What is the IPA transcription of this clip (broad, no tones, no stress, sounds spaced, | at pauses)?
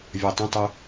vʲ ɒ tˤ ə̃ tˤ œ